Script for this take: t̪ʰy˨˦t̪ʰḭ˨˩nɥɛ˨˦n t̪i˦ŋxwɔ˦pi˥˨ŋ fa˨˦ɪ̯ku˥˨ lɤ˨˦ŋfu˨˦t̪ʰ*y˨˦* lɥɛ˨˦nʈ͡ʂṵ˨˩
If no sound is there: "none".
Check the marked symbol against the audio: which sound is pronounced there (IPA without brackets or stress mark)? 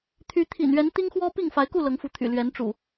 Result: y̰˨˩